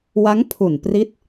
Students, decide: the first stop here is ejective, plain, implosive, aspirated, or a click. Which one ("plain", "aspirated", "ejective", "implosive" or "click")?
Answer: aspirated